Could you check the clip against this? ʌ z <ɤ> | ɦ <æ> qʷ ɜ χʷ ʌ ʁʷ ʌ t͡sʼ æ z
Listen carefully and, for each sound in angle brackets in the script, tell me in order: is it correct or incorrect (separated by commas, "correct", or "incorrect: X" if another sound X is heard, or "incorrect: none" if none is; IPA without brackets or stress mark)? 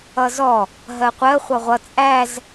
incorrect: ɔ, incorrect: ɜ